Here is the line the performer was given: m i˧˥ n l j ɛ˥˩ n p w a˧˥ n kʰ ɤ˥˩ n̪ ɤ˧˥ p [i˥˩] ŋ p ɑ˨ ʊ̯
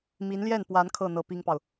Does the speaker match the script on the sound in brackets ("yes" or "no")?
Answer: no